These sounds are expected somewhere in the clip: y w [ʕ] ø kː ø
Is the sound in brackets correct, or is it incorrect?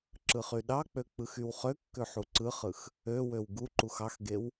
incorrect